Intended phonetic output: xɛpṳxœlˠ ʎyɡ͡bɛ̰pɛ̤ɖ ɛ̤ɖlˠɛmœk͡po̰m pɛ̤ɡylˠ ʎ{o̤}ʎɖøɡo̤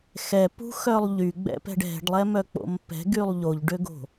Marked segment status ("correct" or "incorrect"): incorrect